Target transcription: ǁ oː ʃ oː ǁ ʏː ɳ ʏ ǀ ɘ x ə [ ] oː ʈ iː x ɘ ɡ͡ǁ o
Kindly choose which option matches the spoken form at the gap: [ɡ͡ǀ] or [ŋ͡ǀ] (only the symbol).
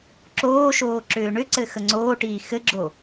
ŋ͡ǀ